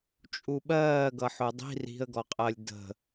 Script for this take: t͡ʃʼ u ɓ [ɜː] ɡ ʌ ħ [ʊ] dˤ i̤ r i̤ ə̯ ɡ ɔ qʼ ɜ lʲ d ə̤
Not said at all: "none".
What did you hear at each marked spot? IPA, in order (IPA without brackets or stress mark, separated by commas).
ɜː, ʊ